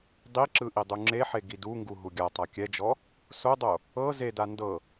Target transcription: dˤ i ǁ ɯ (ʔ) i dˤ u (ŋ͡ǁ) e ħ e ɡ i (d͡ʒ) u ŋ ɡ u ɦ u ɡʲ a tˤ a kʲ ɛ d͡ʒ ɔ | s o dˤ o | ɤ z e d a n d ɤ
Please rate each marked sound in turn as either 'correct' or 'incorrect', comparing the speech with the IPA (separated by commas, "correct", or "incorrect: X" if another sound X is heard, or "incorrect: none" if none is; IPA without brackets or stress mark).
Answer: correct, correct, incorrect: d